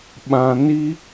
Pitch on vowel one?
low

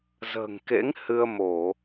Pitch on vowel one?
low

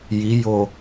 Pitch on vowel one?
rising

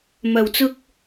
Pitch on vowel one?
low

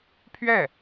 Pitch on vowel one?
falling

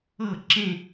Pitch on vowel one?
falling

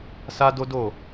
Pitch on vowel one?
high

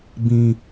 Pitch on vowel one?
low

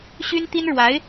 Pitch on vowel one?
high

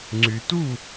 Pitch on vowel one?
low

